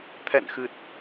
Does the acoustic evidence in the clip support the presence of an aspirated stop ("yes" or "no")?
yes